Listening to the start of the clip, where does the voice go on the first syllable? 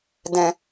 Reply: low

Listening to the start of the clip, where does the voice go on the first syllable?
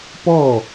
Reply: falling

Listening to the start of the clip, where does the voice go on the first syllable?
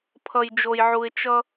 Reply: low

